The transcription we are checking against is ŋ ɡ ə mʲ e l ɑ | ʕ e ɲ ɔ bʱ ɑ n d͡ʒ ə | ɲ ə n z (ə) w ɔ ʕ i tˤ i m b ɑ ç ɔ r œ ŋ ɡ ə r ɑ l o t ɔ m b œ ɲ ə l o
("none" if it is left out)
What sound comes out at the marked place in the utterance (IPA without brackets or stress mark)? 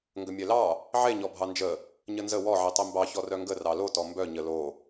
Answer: ə